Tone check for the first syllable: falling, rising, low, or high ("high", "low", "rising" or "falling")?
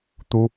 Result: high